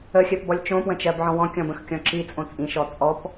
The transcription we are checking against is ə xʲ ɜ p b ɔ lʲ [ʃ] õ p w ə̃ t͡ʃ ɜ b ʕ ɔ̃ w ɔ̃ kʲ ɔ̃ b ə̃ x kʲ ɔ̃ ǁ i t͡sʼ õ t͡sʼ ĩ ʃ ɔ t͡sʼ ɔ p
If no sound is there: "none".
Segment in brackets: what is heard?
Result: t͡ʃ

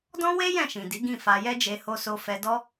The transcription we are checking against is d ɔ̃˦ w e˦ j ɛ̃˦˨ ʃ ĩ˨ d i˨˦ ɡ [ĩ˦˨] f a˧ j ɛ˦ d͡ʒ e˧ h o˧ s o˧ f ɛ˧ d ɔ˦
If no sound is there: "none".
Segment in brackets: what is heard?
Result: ĩ˦˨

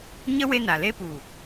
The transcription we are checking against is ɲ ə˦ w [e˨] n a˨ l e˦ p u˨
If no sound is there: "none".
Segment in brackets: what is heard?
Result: e˦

